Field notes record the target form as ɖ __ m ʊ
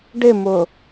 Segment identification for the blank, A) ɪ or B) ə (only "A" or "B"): A